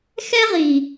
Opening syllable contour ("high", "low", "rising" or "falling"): high